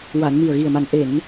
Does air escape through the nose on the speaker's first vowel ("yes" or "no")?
no